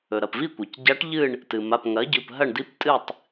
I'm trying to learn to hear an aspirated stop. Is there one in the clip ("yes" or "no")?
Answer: no